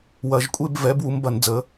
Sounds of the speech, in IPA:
wɐ˨˩˦ʒkʷʼe˥˧bvɛ˩˥b wu˩˥mbɐ˨˩˦nd͡zə˩˥

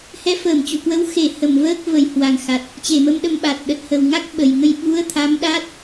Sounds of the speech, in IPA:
hɛ˨˦fəː˧˩mt͡ɕṵ˧˨kwə˨˦w xe˧˩ hə˧˩mvəː˦˥k̚ və˧˩jhwa˨˩ŋxa˨˩t̚ | t͡ɕe˧˩mə˧mɗə˧m ɓa˨˩t̚ ɗə˨˩t̚hə˨˩wŋa˦˥k̚ ɓə˨˩jŋə˧j ɓu˨˦ə̯t̪ʰa˨˦m ɗa˦˥t̚

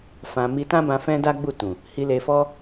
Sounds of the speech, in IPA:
fã˧ mi˧tã˦bã˧ fɛ̃˦da˦ɡ͡bu˦˨tũ˨ | hi˧le˧fɔ˦

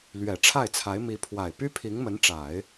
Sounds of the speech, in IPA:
lɥɛ˨˩ʈ͡ʂʰa˥˩ɪ̯t͡sʰa˧˥ɪ̯ mi˧˥pʰwa˨˩ɪ̯ py˥pʰi˧˥ŋmə˧˥nʈ͡ʂa˨˩˦ɪ̯

